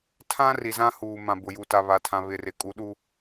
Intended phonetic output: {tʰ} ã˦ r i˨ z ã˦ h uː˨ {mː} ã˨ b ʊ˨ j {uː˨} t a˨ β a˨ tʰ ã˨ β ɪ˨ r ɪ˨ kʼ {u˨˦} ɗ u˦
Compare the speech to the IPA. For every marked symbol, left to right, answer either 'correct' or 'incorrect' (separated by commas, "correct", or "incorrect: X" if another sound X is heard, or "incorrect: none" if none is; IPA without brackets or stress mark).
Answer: correct, incorrect: m, incorrect: u˨, correct